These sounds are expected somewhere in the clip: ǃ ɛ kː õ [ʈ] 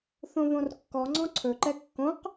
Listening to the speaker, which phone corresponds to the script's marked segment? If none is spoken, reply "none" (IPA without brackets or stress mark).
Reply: q